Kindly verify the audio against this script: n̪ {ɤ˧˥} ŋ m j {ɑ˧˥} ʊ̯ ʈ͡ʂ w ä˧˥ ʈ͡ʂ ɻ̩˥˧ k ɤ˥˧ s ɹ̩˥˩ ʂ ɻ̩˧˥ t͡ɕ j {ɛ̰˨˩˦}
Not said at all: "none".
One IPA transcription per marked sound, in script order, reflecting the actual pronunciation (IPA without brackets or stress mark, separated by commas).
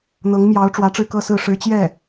ɤ˧˥, ɑ˧˥, ɛ˥˩